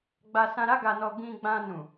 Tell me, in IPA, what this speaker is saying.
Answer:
ɡ͡b a˧ s ã˧ ɾ a˦ ɡ a˧ n ɔ˧ ɡ ĩ˧ ɡ͡b ã˧ n ũ˨

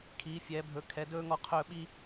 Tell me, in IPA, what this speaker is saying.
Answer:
kʰ iː˧˥ fʲ ɛː˧˥ bʱ ɵ˧˥ kʰ ɛ˧˥ d ɵː˥ ŋ ɔ˥˧ qʰ ɵː˥˧ ɓ i˥

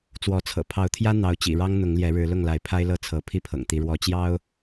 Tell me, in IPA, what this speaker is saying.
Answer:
t͡s w ɔ˨˦ t͡sʰ ɤ̰˨˩ pʰ ɑ˨˦ ʊ̯ t̪ʰ j ä˦ n̪ ɑ˨˦ ʊ̯ t͡ɕ ḭ˨˩ ɻ ɑ˦ ŋ n̪ ʊ˨˦ ŋ l j ɛ˨˦ ɻ ɻ̩˨˦ l ʊ˥˨ ŋ l a˨˦ ɪ̯ pʰ a˦ ɪ̯ l ɤ˥˨ t͡sʰ ɤ˨˦ pʰ i˥˨ pʰ ɤ̰˨˩ ŋ t̪ i˨˦ ɻ w ɔ˨˦ t͡ɕ j ɑ˦ ʊ̯

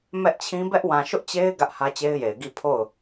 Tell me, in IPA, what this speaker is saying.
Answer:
m ɛ˦ ʔ t͡ɕʰ ĩ˦ b ɛ˦ ʔ w ã˨ ʃ ʊ˦ ʔ t͡ɕ e˦ ɪ̯ ɡ ä˦ ʔ h ä˦ t͡ɕ e˦ ɪ̯ j e˨ ɪ̯ ɡ i˦˨ pʰ o˦˨ ʊ̯

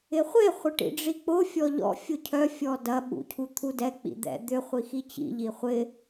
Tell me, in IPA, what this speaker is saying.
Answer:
ɪ χʷ e χʷ ɪ ʈ ḭ ɖ͡ʐ i k͡p ʊ fʲ ɔ ʎ ɔ̰ fʲ ʊ cʰ œ fʲ ɔ d ɐ ɓ ṵ cʰ u t̪ʰ u d ɛ k͡p ḭ d̪ ɛ̰ d̪ ʏ χʷ i x i t͡ɕ ḭ ʎ i χʷ ɪ

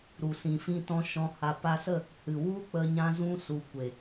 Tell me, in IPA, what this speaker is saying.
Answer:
ɾ u˨ s ĩ˨ f ĩ˧ t ɔ̃˧ ʃ ɔ̃˧ h a˧ p a˧ s ə˦˨ | h ɨ˨ w u˦ k͡p ə˧ ɲ ã˧ z ũ˧ s u˨ kʷ e˨

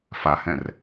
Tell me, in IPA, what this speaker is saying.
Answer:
f a h ɛ̃ r

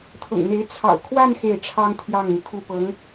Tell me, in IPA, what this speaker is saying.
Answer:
t̪ʰ ɤ̰˨˩ ŋ n̪ e˧˥ ɪ̯ t͡sʰ ɑ̰˨˩ ʊ̯ kʰ w a˥˧ n x e˥˩ ɪ̯ ʈ͡ʂʰ ɑ˥ ŋ t̪ʰ j ɑ˥˩ ŋ n̪ y˩ kʰ u˥˩ p ɤ˧˥ ŋ

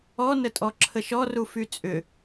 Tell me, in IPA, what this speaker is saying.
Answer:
ɔ n ə tʼ ɔ ǁʰ ə ʃ ɔ r u f y t͡sʼ ʏ

